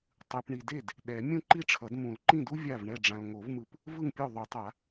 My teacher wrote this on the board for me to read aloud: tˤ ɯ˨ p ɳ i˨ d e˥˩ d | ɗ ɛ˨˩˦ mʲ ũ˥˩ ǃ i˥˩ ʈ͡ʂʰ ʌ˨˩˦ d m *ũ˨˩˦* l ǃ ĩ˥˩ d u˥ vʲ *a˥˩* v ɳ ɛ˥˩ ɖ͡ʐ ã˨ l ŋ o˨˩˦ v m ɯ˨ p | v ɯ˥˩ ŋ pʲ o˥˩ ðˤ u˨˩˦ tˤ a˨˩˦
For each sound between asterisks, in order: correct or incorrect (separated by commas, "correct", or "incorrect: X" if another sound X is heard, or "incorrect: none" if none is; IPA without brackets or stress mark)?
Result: correct, correct